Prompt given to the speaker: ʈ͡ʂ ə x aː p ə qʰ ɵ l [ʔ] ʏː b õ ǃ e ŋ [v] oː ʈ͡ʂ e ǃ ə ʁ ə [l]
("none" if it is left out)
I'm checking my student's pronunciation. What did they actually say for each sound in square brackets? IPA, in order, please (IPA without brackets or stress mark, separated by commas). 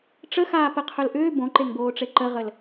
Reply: ʔ, b, l